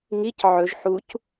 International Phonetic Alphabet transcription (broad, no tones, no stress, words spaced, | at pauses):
ŋic ʕɵʒ ħuc